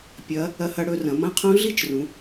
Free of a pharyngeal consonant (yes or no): yes